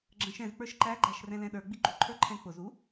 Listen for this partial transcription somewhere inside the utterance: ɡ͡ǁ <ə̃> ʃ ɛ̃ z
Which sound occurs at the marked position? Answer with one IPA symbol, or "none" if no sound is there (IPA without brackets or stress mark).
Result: ə̃